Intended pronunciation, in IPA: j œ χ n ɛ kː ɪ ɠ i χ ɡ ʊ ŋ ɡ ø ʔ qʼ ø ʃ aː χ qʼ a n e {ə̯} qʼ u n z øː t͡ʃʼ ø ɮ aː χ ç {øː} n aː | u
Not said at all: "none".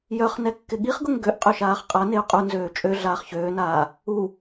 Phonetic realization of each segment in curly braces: ʊ̯, øː

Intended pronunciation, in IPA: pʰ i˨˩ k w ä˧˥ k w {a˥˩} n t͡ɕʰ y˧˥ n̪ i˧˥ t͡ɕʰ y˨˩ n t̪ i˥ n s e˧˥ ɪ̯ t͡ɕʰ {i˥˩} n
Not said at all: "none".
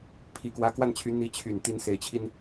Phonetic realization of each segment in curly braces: a˥˩, i˧

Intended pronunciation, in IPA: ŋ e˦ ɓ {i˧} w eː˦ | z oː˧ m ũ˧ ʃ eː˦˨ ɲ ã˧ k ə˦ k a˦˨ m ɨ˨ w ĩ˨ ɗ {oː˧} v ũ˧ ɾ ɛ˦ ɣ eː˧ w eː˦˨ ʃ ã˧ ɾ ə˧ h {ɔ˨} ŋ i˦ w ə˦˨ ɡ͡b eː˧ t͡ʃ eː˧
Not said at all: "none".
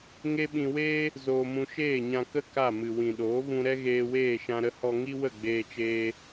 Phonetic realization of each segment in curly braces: ĩ˧, oː˨˦, ɔ˧

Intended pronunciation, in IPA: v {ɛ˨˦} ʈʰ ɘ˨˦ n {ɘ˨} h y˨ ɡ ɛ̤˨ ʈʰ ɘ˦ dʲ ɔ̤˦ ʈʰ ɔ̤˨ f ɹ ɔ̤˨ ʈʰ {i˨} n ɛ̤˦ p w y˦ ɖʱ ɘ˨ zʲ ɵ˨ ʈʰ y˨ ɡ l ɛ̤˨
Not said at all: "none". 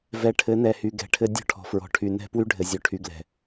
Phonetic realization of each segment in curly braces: ɛ˨˦, ɛ˨, y˨

